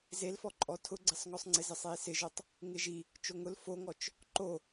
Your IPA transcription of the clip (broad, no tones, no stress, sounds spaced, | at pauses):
z e l f ɔ ǃʼ ɔ tʰ ʊ ɡ͡ǀ ɪ sˤ ŋ ɔ sˤ ŋ͡ǀ ɪ z ɪ sˤ e i̯ s ɪ ʒ o tˤ | ŋ ɪ ʒ i | t͡ʃ o ŋ ʊ l f o ŋ ɔ t͡ʃ | ǃ o